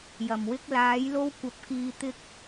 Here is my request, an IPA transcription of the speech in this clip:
j ɐ˨˩ m w ɪ˥ k̚ l aː˨˥ j l o˥ w kʷ ɐ˨˥ p̚ k iː˧ t̪ ɪ˥ k̚

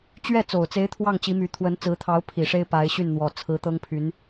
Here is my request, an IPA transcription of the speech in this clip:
t͡ɕ ɥ ɛ˥˩ t͡s o˨˩ ʊ̯ t͡s e˧˥ ɪ̯ t̪ʰ w ɑ˥˩ ŋ t͡ɕ i˧˥ m y˧˥ t̪ʰ w ə˧˥ n t͡s ɹ̩˧˥ t̪ʰ ɑ˧˥ ʊ̯ pʰ i˨˩ ʂ e˥ ɪ̯ p a˧˥ ɪ̯ ɕ y˥˩ n n̪ w ɔ˨˩ t͡sʰ ɹ̩˧˥ t̪ ɤ˥ ŋ pʰ y˧˥ n

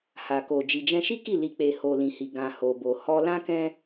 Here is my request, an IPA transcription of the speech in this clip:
h a˨ k o˨ d͡ʒ i˨ d͡ʒ ɛ̃˧ ʃ i˦ k i˦˨ l i˨ k͡p e˨ h o˨ l ĩ˨ h i˨ ɡ ã˨ h o˨ b o˨ h ɔ˧ l ã˦ k ɛ̃˦

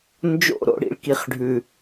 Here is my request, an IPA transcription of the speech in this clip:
n d͡ʒ o̰˦˨ ɾ o̰˦ ɽ ḭ˦ ɭ k i˨ χ ɖʱ ʉ˨

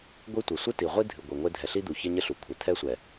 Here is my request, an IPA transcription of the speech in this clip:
ɡʷ i˦ tʷ i˨ sʷ ɨ˦ t i˨ ʁʷ i˦ dʱ ɨ˨ ɡʷ ɘ˨ ŋʷ e˦ dʱ ɛ˨ ɬ i˦ d̪ u˨ ç ɘ˦ ɲ ɘ˦ ɬ u˨ kʷʰ ɛ˨ t̪ʰ ɛ˦ sʷ ɛ˨

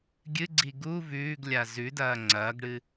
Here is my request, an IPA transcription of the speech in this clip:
ɡʲ ɨ ɡ͡ǀ i ɡ u v ʉː ɡ lʲ a z ʉ d ɐː ŋ͡ǀ ɐː ɡ ɽ ɨ

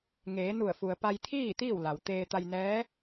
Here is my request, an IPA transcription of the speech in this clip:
ŋ eː˩˧ n u˧˩ ə̯ f u˩ ə̯ p a˧ j t̪ʰ iː˥˨ t̪ iː˥˨ w l a˩ w t̪ eː˧ t̪ a˧ j n ɛː˧˥

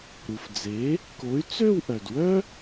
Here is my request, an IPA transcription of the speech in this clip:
ɾ u˩ f d͡z e˩˥ | k o˩˥ y̯ t͡s ø˥˧ w ʔ œ˩ d w œ˥

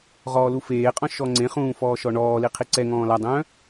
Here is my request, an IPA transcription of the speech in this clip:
ʁ ɔː l u f eː qʼ ɔ̃ ʃ ɔ ŋ͡ǀ ẽ χ ũː f ɔː ʃ ɔ ɳ ɔː l i qʰ i ǀ ɛ ŋ ɔ̃ː l a dˤ œ̃ː

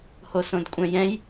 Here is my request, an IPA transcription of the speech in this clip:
h o s õ d kʷʼ ɛ̃ j ɛ̃ j

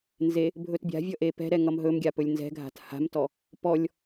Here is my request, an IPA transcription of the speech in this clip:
n z e | bʱ ɵ t bʲ a̤ vʲ ʌ ʔ e p ɛ̤ ɾ ɛ ŋ ʌ m ɦ ɵ m ɡʲ a p ɵ lʲ n z ɛ̤ ɡʱ a̤ t h a̤ m t ɔ | p ɔ lʲ

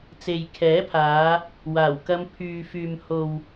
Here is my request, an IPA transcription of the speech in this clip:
t͡s e˨ j kʰ ɛː˨˥ pʰ aː˨˧ | w aː˨˩ w k ɐ˧ m pʰ yː˨ f yː˨ m h o˨ w

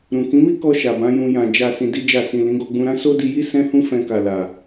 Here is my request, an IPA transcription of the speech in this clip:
ɾ ũ˨ k ĩ˨˦ m i˦ k ɔ˧ ʃ a˨ b ã˨˦ j ũ˧ j ã˨ d͡ʒ a˨ s ĩ˧ d i˦ d͡ʒ a˦˨ s ĩ˨ l ĩ˨˦ ɡ ɔ˧ ɡ͡b ũ˧ ɾ ã˦ s o˦ d i˧ j i˦ s ɛ̃˦ h ũ˦ f ɛ̃˧ k a˨ l a˨

